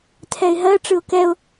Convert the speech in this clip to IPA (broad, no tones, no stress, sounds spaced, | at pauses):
tʰ ɛ ɪ̯ ɦ ɜ ʈ͡ʂ ɯ ʊ̯ k ɛ ʊ̯